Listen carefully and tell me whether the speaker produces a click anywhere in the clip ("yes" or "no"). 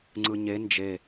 yes